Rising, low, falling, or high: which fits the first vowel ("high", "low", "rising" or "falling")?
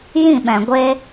falling